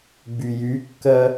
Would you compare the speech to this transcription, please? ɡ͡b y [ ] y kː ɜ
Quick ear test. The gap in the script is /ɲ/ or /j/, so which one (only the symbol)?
j